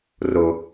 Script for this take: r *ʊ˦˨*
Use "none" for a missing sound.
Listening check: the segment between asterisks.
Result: ʊ˦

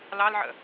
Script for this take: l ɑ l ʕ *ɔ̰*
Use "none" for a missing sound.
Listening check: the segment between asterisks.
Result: ə̰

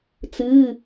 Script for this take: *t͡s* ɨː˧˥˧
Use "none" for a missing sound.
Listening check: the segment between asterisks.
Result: t͡s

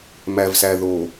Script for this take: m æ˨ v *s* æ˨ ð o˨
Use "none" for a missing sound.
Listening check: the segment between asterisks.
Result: s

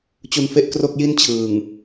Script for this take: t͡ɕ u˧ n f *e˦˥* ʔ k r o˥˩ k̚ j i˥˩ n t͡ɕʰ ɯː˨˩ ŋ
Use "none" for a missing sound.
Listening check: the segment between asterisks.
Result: e˦˥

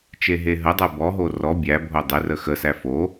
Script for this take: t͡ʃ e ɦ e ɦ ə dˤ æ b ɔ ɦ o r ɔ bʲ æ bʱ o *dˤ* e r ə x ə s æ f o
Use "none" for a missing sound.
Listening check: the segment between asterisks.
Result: dˤ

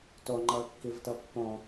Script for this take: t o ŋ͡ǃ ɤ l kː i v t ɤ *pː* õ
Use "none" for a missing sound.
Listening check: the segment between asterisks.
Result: pː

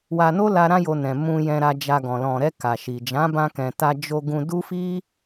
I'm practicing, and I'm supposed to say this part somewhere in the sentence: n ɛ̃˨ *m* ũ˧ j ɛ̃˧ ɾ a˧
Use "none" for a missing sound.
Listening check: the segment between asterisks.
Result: m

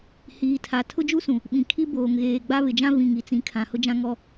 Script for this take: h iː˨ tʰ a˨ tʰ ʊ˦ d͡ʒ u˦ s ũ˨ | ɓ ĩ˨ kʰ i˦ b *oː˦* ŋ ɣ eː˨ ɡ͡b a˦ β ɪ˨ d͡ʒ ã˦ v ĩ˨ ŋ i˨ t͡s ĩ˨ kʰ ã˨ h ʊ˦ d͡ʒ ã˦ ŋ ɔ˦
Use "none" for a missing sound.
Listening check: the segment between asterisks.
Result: oː˨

